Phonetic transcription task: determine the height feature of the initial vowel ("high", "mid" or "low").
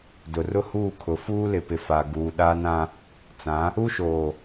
high